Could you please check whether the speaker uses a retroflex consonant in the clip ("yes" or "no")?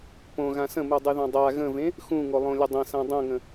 no